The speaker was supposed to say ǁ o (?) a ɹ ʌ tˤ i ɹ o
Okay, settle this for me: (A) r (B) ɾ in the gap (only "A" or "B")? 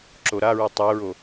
B